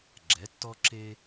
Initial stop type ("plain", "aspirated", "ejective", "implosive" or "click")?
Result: click